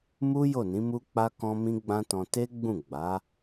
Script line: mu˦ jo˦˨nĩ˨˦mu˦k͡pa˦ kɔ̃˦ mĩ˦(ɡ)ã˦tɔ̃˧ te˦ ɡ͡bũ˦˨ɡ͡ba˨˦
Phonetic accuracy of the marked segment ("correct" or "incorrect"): incorrect